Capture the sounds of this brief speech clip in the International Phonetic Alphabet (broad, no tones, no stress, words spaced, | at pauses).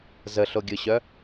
zəɬoɡʲɯɕœ